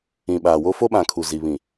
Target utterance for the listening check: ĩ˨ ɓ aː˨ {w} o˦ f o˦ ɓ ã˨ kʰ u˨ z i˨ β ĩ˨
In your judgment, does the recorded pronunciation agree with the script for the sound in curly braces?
yes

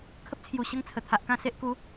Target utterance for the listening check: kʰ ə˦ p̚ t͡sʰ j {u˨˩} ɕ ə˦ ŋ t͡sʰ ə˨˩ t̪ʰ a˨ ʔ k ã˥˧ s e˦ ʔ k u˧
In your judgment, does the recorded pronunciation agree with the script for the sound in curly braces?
yes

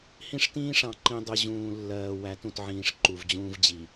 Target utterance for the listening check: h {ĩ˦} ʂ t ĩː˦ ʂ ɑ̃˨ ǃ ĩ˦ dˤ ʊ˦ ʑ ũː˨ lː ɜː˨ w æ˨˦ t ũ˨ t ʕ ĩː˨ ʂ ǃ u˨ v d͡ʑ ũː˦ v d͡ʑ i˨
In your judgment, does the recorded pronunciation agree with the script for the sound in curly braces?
yes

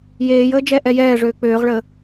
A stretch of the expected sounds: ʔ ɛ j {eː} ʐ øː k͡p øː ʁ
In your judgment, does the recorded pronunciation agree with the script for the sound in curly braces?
no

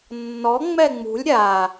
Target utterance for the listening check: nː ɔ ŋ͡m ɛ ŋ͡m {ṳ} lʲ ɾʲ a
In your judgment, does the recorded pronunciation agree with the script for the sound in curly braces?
yes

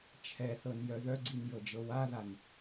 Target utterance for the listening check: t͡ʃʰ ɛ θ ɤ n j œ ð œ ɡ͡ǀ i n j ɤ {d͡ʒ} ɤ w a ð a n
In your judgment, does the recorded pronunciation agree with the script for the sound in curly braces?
yes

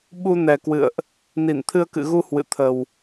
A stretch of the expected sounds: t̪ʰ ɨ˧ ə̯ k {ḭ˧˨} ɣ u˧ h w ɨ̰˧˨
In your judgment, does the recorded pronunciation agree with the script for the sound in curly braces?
no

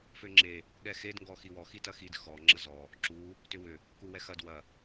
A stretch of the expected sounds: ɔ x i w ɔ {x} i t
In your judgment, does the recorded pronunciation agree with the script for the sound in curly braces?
yes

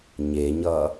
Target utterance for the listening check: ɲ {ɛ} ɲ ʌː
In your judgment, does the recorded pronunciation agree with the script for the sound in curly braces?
no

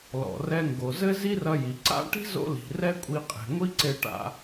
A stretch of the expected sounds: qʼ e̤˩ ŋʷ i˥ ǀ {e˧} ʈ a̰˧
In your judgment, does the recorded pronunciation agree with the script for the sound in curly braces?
yes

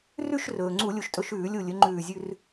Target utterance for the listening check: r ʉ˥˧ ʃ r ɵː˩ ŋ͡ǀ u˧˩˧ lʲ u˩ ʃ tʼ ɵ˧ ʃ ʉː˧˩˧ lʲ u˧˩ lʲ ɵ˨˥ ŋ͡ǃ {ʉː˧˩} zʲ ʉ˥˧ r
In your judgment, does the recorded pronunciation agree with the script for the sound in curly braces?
yes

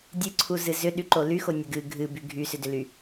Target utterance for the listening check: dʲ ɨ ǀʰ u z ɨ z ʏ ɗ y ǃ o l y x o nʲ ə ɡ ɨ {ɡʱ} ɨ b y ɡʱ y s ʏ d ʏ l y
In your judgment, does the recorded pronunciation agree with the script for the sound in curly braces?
yes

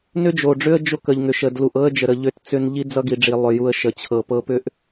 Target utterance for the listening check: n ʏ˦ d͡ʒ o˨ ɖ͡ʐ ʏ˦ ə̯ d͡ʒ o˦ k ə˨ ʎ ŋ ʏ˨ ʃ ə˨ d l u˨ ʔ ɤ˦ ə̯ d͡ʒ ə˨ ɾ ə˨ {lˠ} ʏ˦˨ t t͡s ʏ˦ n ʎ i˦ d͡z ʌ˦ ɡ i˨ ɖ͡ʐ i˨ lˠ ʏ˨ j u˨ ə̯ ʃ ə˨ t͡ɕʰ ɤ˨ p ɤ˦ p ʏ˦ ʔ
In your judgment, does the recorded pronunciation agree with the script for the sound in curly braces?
no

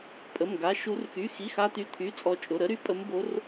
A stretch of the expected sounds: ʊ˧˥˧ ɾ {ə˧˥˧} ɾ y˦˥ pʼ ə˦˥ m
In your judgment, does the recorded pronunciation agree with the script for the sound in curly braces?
no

